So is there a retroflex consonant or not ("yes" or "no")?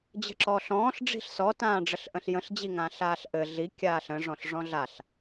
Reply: yes